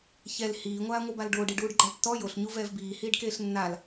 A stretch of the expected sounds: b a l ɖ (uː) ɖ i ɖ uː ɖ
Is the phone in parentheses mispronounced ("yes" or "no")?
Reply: yes